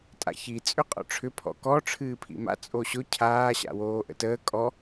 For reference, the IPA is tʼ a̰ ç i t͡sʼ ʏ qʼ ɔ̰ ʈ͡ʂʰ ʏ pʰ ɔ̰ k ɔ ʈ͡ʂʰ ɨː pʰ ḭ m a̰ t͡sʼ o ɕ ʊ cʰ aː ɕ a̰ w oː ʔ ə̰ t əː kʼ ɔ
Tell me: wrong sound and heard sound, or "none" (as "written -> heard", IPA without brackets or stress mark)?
none